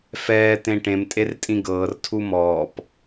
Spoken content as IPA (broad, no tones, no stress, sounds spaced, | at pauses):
f ɛː t̪ ẽ ʈ ẽ m tʼ e r tʼ ĩ ɡ ɤː r tʰ u m ɔː p